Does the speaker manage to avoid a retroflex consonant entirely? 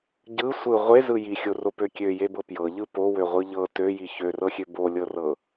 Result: yes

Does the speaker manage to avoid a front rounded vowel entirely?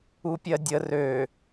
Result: no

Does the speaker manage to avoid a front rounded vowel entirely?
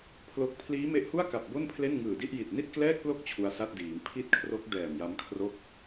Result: yes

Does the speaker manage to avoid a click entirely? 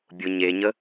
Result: yes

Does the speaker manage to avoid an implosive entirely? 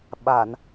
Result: no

